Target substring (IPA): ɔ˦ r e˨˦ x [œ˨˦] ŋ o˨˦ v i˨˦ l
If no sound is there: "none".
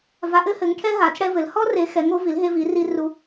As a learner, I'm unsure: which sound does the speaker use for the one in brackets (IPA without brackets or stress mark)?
ɛ˨˦